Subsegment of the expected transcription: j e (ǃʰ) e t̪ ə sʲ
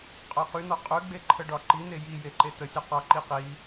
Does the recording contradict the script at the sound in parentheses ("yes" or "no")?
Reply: yes